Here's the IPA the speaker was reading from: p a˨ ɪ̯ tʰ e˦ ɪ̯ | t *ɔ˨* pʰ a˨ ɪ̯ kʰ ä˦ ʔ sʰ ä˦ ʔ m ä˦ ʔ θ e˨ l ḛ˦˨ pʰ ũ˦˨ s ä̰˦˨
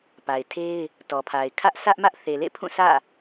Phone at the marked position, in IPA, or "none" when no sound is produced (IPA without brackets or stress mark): ɔ˨